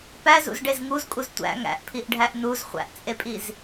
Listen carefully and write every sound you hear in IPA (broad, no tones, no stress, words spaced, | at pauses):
pæzṵzɖez ŋuzkʼuz tʷæ̰ ŋæ̰ʔpʰiʔɖʱæʔ nuz χʷæ̰ʔt͡sʼepʼiz